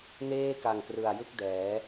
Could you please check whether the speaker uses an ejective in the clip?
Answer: no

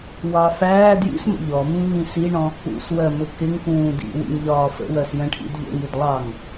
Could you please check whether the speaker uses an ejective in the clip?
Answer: no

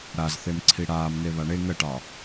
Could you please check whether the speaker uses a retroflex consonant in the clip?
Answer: yes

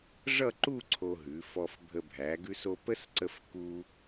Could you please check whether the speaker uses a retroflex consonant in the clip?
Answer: yes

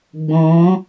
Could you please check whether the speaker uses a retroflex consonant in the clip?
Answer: no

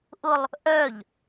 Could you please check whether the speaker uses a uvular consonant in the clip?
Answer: no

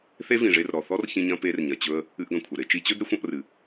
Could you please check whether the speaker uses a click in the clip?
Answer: no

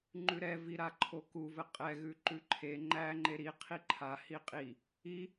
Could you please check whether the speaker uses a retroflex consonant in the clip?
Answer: no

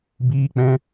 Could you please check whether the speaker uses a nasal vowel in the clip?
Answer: yes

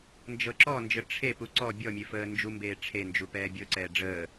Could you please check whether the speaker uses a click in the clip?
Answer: yes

